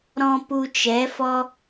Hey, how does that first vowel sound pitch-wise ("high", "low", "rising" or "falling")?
high